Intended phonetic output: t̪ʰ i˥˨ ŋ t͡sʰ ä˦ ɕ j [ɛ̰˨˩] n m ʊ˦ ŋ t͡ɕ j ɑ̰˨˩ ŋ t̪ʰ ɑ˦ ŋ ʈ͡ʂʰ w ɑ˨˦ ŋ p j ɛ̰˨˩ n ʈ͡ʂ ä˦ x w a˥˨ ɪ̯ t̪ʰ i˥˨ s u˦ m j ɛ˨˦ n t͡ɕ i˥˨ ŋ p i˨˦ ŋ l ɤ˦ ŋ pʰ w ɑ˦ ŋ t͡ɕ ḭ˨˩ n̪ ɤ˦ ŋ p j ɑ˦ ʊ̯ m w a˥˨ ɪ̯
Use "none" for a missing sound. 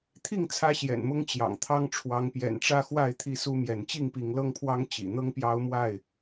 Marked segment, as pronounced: ɛ̰˨˩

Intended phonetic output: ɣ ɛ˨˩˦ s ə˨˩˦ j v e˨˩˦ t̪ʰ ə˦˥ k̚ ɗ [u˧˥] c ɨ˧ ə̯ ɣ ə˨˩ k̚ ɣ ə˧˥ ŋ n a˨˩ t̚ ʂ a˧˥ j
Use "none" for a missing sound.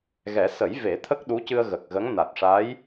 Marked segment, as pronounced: u˧˥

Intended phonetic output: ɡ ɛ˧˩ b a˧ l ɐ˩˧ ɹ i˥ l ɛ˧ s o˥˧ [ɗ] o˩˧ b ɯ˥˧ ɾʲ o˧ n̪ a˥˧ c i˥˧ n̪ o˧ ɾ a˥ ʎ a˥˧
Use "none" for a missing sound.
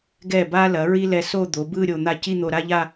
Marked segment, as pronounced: d̪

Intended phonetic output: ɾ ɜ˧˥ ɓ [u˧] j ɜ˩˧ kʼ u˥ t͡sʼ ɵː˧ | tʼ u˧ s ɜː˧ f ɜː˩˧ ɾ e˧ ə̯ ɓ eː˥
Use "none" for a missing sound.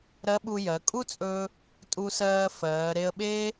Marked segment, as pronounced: u˧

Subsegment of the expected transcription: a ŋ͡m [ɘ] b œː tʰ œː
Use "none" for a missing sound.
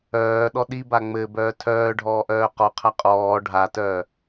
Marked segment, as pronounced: ɘ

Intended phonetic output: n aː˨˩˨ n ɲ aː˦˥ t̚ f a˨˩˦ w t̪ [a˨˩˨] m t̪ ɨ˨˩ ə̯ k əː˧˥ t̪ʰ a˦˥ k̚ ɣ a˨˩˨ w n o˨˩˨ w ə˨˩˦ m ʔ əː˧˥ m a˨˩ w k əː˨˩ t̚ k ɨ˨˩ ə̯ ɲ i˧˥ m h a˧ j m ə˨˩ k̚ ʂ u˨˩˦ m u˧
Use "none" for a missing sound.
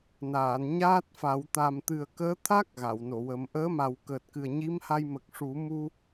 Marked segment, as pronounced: a˨˩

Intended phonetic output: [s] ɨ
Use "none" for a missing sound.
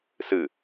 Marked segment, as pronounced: s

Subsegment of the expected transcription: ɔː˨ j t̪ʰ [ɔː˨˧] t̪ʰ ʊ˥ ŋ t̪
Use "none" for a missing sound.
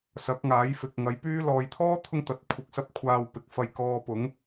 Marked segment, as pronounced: ɔː˥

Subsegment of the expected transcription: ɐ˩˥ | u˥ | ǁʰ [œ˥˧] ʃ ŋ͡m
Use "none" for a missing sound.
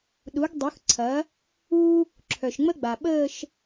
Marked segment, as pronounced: œ˩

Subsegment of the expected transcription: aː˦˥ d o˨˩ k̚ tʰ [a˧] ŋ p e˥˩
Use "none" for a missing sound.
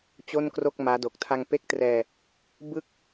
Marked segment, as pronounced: a˧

